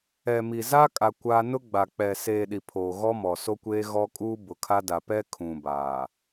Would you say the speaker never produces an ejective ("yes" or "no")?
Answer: no